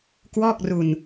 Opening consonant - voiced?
no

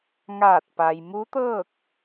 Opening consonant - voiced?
yes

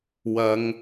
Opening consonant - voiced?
yes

